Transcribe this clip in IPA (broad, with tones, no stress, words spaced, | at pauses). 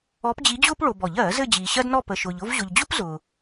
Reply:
ɔ˧˥pd͡ʑi˧˥d͡ʑʊː˥p ɭo˨bɔ˨˩˦ʎɜː˨˩˦ zɘ˥˧d͡ʑiː˨ɕɜ˥dnɔ˥˧ pə˨ʃʊː˨ʎ ʊ˥˧vʑʊ˨ʎd͡ʑʊ˥p zʊː˨